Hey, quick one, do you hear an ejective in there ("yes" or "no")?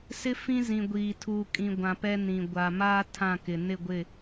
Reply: yes